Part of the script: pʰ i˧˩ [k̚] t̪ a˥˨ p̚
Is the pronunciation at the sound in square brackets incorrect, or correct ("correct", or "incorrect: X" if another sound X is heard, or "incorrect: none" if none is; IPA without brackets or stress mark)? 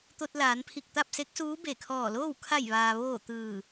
correct